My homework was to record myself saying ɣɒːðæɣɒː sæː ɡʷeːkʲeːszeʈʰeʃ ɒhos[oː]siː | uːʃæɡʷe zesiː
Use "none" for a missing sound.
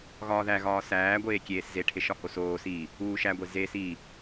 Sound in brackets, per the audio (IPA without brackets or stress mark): oː